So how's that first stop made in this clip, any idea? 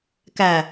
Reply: plain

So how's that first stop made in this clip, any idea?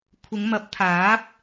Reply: aspirated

